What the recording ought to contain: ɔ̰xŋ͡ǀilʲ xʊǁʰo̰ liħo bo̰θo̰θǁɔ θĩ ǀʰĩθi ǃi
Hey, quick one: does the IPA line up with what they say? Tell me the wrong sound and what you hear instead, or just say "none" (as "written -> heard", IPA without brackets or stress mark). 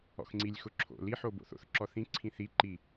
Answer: none